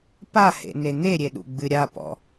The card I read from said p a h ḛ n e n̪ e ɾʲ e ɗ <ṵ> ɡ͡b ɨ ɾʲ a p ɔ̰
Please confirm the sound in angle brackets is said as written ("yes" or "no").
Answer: yes